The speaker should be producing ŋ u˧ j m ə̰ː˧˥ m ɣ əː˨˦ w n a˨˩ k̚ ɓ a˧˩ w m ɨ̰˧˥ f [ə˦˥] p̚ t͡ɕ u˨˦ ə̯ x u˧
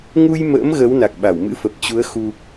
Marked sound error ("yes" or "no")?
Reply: yes